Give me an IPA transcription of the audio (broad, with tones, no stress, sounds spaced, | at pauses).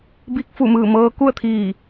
b i˧ k̚ f u˧˩ m ɯː˧˩ m ɤː˧ k u˥˨ ə̯ t̪ʰ iː˧˩